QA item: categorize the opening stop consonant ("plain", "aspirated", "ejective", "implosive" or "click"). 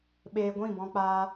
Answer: implosive